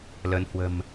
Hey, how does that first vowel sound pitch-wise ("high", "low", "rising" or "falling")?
rising